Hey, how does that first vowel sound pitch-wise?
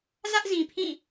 high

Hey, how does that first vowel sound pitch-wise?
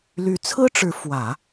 rising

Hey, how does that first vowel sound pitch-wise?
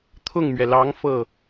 falling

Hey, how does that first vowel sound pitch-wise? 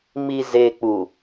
low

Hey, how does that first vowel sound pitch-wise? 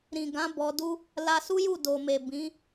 low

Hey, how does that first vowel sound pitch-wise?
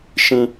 high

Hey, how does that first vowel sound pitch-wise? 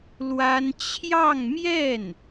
high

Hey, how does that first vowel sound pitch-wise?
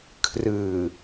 low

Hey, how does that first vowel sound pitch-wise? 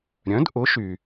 rising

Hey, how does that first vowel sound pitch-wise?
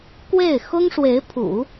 falling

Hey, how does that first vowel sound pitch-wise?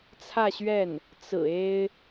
falling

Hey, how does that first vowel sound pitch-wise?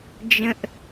low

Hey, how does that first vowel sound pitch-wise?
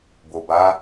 low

